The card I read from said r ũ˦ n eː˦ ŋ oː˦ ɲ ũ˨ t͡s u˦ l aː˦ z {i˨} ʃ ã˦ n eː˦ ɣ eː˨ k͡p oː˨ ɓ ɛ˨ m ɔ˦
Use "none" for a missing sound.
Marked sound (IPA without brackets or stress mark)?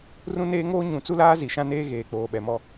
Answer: i˨